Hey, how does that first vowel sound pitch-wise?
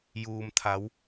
low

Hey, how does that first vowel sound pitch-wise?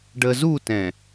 low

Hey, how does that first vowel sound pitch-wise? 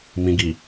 low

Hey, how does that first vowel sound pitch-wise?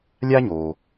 high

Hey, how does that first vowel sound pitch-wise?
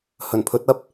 low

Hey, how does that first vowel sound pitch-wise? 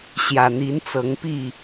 low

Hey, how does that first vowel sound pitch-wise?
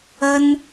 high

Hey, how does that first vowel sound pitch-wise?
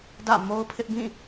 falling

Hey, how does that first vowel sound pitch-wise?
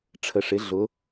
low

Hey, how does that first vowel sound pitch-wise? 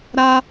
high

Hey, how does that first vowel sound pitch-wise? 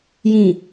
low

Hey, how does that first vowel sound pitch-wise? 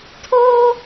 high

